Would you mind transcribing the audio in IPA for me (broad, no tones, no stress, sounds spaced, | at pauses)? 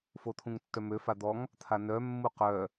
f o t̪ʰ ũ ŋ tː œ m ø f a d̪ ɔ ŋ | t̪ʰ a n œ mː u q œ